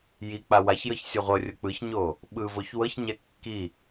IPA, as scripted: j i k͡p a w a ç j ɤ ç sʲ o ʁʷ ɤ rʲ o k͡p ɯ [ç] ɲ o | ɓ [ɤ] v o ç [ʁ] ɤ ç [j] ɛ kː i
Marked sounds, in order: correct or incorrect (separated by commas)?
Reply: correct, incorrect, incorrect, incorrect